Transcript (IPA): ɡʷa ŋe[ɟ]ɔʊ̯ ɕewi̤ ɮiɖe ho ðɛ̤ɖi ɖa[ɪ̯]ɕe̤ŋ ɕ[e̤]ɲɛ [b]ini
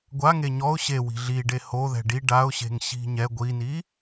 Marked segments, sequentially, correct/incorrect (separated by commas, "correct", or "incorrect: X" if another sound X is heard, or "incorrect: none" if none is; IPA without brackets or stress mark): incorrect: ɲ, incorrect: ʊ̯, incorrect: i̤, incorrect: ɡʷ